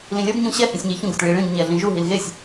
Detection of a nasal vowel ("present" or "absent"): present